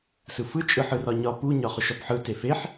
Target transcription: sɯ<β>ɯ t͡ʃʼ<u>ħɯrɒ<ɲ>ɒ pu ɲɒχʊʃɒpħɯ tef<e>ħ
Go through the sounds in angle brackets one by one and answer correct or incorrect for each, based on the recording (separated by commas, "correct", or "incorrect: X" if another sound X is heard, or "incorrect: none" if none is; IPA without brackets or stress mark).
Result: incorrect: f, incorrect: ɯ, correct, correct